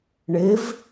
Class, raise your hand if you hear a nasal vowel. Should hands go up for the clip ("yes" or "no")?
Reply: no